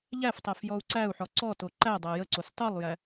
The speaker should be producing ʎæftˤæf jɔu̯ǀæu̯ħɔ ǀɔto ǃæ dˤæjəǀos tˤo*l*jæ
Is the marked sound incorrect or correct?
incorrect